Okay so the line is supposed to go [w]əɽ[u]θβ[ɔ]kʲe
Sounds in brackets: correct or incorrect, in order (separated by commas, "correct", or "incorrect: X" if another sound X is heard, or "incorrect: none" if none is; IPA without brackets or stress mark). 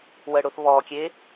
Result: correct, incorrect: ʊ, correct